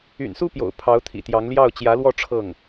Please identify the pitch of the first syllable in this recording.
low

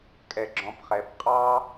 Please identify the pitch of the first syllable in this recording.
low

